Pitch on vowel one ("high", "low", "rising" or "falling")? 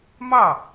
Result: falling